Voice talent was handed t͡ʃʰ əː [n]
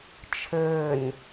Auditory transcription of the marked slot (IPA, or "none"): n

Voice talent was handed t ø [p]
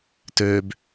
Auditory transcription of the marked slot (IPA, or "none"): b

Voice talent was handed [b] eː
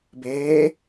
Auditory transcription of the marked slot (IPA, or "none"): b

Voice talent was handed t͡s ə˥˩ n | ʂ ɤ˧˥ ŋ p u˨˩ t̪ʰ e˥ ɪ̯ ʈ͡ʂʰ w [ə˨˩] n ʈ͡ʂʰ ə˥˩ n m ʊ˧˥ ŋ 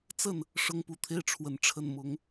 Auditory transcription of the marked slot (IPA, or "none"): ə˨˩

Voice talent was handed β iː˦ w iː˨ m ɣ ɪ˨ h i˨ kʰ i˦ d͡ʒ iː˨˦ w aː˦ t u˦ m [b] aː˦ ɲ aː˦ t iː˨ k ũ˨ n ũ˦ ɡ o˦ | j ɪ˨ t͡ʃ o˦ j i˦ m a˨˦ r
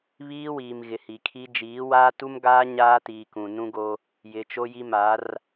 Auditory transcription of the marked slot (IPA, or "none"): ɡ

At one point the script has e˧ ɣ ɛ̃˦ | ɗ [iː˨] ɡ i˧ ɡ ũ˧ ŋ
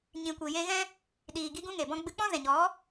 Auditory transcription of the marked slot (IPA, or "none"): iː˨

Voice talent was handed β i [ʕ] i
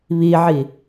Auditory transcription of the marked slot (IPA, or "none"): ʕ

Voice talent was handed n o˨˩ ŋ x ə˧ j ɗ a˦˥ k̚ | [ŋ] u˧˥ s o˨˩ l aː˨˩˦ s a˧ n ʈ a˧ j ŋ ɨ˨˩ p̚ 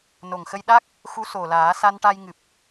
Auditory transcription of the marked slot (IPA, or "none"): x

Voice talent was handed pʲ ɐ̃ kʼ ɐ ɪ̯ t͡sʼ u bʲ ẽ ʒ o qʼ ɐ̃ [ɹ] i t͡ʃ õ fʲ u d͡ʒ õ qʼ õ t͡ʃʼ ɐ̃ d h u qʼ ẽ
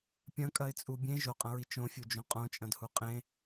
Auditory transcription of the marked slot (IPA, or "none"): ɹ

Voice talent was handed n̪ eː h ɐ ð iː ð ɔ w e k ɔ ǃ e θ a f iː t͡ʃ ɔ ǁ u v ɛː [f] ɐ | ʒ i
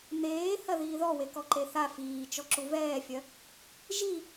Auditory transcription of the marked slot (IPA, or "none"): fʲ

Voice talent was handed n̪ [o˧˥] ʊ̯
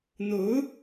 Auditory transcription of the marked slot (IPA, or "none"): o˧˥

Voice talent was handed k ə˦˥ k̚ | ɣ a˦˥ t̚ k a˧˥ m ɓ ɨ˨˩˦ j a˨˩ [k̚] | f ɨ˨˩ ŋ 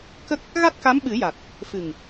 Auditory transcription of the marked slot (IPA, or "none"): t̚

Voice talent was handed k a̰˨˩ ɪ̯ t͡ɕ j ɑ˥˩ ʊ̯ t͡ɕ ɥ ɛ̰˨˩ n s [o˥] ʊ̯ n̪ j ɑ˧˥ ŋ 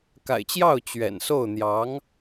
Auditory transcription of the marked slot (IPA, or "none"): o˥˩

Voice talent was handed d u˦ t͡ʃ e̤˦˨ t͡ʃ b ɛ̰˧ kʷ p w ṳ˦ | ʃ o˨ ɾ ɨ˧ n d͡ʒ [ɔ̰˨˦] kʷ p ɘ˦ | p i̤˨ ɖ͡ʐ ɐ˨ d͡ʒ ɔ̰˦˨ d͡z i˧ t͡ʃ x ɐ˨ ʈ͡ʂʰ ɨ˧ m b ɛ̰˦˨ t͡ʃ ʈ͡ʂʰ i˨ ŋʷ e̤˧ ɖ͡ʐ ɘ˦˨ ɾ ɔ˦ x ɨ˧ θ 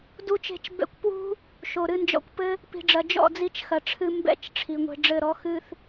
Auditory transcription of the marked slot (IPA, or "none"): ɔ̰˧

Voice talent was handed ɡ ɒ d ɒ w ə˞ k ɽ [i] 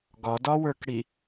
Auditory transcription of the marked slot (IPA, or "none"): i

